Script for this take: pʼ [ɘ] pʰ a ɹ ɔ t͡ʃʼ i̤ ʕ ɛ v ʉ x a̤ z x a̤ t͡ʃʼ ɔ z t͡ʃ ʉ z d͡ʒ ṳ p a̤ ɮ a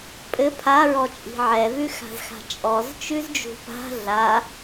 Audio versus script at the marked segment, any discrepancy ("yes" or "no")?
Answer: no